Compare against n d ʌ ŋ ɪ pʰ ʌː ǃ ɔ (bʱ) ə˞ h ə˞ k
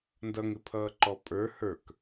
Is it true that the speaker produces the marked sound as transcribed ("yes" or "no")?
no